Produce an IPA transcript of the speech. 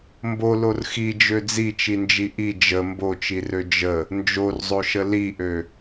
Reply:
m b o l o r x i d͡ʒ ø d͡z i t͡ʃ i n d͡ʒ i ʔ i d͡ʒ ə m b o t͡ʃ i r ø d͡ʒ ə | n d͡ʒ o r zˤ o ʃ ə l i ʔ ø

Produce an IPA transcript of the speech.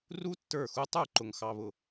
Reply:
r u˦˥ tː ə˞˧˩ x u˧ tˤ u˧˩ ǃ ʊ˧ ŋ x ɑ˧ β ʊ˧˩

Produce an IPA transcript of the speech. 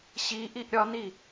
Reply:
ɕ i ʔ i ʔ ɾʲ ɒ n i

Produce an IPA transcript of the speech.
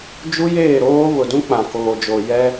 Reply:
d͡ʒ u˦ j eː˦˨ ɾ oː˦ β ʊ˨ d ũ˦ k͡p ã˨ k oː˨ d͡ʒ o˨ j ɛ˦

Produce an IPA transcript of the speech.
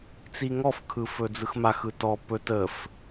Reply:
t͡s i ŋ ɔ f kʰ ɯ f ɵ d͡z ɯ x m a x ɯ t ɔ p ɵ t ə f

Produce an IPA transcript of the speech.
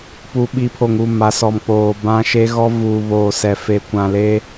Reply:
p u˨ ɓ i˨˦ pʰ o˨ ŋ u˦˨ m a˨˦ s ɔ˨ m k͡p oː˨ b ã˦ ʃ e˦ ɣ ɔ˦ v uː˨ β oː˨ s ɛ˨ f e˨ kʷ ã˨ l e˦

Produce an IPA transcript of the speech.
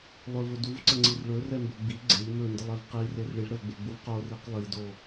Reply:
lˠ ɵ v ɵ d u v ǀ ə ŋ͡ǀ i r ɭ ɵ r ɛ m b ɵ ɡ͡b i ɡ͡ǀ e ʎ m ɵ n d ə lˠ ɛ v q i r e r ɭ i ɭ ɾ ə v ɡ͡b e ɡ͡b u v q o r i q lˠ i d o

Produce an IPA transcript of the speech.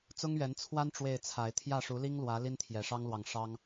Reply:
t͡s ʊ˦ ŋ ɥ ɛ˨˦ n t͡sʰ w a˦ n ʈ͡ʂ w e˥˨ ɪ̯ t͡sʰ a˨˦ ɪ̯ t̪ʰ j ä˥˨ ʂ u˨˦ l i˦ ŋ l w ä˨˦ l i˦ n t̪ʰ j ɛ˨˩ ʂ ɑ˦ ŋ l w ɑ˨ ŋ ʂ ɑ˦ ŋ

